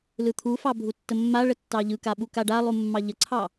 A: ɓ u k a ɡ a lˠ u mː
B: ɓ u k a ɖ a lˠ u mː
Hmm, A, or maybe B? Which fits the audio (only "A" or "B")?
B